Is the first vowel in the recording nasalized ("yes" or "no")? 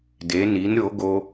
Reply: no